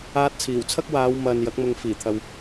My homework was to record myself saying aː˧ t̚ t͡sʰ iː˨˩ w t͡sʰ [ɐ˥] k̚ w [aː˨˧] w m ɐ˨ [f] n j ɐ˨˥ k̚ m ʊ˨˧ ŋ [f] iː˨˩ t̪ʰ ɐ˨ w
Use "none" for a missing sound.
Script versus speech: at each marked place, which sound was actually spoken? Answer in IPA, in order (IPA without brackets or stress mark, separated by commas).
ɐ˥, aː˨˧, none, f